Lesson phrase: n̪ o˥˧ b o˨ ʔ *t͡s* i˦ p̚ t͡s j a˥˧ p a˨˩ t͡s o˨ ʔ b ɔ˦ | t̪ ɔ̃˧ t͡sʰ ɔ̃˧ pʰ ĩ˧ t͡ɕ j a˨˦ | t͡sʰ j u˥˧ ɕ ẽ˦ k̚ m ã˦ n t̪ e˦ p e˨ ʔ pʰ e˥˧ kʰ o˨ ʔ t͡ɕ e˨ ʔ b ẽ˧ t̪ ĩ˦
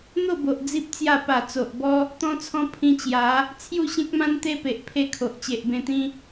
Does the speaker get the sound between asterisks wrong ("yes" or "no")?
yes